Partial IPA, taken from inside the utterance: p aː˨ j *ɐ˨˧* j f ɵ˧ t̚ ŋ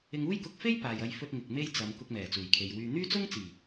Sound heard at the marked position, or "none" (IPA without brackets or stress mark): ɐ˨˧